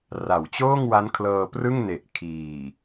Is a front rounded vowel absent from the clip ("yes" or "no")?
yes